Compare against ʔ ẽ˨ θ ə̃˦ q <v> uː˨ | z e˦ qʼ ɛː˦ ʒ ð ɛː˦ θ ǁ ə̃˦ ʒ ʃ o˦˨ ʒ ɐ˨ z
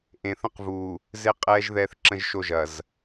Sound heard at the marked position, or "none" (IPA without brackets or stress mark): v